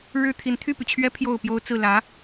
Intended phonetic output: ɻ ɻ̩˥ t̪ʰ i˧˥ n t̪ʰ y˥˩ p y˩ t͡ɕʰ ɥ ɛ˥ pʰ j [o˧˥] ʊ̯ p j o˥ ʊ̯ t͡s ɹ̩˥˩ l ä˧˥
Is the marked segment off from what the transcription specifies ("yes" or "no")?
yes